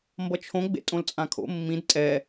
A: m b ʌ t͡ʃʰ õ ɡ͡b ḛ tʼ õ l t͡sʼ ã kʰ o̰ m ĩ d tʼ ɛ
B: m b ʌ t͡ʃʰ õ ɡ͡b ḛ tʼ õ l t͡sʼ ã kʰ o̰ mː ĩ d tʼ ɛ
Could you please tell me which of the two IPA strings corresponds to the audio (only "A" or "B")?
B